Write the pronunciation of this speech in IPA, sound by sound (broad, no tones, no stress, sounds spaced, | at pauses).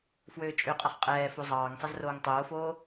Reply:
f w øː t͡ʃʼ ø qʼ ɐ χ qʼ ɛː f o zˤ ɑː ŋ sˤ ɐ z r oː ŋ tˤ oː f oː